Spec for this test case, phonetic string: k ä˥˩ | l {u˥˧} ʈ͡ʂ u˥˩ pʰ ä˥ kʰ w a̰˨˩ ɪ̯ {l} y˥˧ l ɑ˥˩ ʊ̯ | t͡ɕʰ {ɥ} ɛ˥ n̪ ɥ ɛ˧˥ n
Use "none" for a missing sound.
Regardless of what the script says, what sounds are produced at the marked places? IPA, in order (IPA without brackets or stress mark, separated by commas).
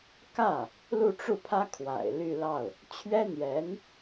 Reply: u˥˧, l, ɥ